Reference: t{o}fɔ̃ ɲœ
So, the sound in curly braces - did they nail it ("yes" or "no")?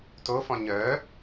yes